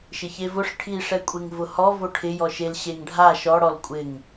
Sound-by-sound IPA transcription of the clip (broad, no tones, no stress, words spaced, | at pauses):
ʃɪçevʊʂ ʈʰiʂɛkʷʼeŋ vʊhɔ voʈʰɪ jɔʃel ɕeŋɖʱa ʃɔɽɔl kʷʼɪŋ